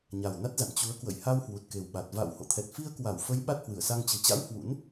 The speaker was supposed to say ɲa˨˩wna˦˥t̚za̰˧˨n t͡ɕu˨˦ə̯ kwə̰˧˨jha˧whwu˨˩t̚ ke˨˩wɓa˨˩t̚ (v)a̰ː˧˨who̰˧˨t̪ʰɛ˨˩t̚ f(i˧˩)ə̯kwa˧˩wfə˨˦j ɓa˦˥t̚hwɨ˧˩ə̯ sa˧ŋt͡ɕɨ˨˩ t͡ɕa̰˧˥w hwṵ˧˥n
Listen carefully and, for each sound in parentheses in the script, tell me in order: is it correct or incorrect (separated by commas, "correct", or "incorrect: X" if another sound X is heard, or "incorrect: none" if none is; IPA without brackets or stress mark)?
correct, incorrect: i˧